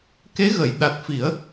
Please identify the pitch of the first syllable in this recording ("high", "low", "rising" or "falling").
rising